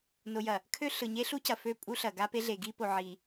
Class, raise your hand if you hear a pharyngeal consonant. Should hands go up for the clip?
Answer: yes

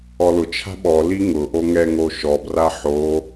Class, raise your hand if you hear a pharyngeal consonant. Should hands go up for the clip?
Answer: yes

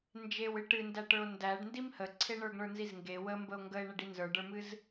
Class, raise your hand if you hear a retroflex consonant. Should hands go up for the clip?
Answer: yes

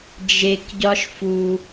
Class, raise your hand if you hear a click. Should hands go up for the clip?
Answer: no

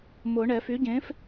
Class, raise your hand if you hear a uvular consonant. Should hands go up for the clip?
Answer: no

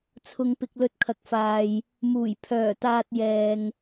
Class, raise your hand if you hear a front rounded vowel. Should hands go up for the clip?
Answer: yes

